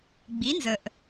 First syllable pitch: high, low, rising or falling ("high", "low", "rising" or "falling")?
rising